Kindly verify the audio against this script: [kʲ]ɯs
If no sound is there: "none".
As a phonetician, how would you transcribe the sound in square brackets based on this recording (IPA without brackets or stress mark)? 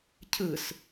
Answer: cʰ